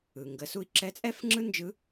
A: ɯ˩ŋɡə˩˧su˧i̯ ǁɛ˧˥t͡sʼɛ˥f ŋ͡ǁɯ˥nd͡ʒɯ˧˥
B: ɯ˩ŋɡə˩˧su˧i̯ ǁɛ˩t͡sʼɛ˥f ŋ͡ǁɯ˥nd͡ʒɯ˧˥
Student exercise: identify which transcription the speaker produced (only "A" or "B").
A